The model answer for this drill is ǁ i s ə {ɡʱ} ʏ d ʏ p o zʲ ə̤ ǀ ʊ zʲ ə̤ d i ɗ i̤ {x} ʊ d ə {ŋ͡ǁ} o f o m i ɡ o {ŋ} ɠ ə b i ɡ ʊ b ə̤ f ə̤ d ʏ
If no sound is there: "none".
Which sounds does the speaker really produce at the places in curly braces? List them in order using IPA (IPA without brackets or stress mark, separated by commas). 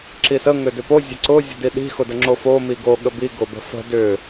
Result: ŋ, x, ŋ͡ǁ, none